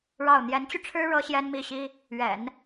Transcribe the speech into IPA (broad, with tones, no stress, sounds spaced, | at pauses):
ɻ ɑ˥˩ ʊ̯ n̪ j ɛ˧˥ n t͡ɕ y˧ ʈ͡ʂʰ ɻ̩˥ ɻ ɤ˥ ɕ j ɛ˥ n m i˥˩ ɕ i˥ | ɥ ɛ̰˨˩˦ n